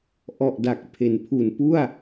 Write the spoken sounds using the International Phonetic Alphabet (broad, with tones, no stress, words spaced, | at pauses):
ʔɔ˨˩ʔda˨˩k̚ pʰe˩˦npʰu˨˩npu˥˩a̯